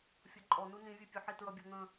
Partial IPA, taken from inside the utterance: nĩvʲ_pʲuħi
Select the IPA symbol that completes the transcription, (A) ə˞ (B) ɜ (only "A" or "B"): B